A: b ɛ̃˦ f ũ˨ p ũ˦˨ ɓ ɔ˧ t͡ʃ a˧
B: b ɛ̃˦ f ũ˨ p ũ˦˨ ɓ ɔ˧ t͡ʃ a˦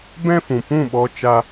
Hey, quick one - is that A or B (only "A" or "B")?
B